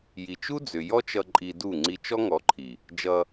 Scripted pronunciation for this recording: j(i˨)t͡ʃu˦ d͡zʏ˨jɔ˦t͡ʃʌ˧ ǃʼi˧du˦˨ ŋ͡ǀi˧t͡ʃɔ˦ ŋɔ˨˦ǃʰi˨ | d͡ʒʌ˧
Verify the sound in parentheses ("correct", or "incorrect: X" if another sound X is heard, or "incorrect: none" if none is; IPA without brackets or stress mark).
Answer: correct